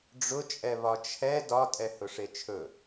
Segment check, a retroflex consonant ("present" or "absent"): present